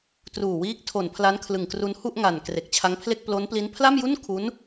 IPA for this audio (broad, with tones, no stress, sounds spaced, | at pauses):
t r uː˨˩ w iː˦˥ k̚ tʰ o˨˩ n pʰ l a˦˥ n kʰ l ɯ˨˩ ŋ k r u˧ n h u˥˩ ʔ ŋ a˨˩ n k r e˨˩ k̚ t͡ɕʰ a˦˥ ŋ pʰ l e˥˩ k̚ p l o˦˥ n p l i˦˥ n pʰ l a˥˩ m j u˥˩ n kʰ u˦˥ n